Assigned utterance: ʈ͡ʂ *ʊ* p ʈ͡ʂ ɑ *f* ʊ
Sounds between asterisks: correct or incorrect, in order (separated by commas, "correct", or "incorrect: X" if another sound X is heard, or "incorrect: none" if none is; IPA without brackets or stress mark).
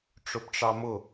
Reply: correct, incorrect: m